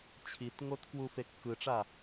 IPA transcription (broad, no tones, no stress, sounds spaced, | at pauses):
t͡ɕʰ i t ŋ o t k w u f e kː ɯ ʈ͡ʂ a